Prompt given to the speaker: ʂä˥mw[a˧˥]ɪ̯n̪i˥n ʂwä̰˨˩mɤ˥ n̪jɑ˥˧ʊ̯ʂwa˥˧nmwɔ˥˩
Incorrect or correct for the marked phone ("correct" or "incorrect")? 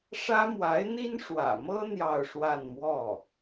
correct